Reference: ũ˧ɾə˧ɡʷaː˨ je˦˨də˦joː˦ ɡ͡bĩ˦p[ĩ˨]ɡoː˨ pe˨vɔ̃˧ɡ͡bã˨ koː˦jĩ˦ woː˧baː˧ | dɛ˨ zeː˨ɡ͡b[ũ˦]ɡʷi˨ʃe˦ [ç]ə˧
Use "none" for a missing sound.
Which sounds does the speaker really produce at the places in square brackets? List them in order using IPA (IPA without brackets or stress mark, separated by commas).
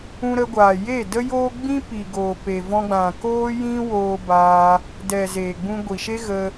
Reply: i˨, ũ˧, ɣ